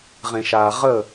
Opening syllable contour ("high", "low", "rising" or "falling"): low